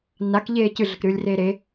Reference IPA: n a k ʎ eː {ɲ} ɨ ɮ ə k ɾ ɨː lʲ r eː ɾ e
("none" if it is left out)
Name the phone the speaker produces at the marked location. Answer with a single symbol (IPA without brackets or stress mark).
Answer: c